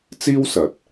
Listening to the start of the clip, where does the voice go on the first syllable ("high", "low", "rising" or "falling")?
high